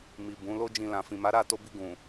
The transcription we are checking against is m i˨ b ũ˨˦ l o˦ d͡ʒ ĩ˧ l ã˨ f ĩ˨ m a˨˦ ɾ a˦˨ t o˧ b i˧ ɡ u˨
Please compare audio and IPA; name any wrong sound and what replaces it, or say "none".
u˨ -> ũ˨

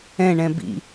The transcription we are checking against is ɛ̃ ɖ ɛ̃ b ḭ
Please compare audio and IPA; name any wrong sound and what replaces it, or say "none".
ɖ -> ɳ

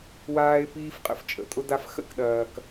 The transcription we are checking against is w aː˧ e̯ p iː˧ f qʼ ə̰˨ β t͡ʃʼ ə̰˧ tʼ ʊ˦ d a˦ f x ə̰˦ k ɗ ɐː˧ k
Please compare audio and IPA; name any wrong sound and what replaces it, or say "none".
β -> f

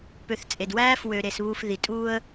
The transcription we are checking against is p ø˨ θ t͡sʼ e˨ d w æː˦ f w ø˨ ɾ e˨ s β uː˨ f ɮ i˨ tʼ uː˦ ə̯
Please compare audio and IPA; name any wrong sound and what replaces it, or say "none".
ɮ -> ð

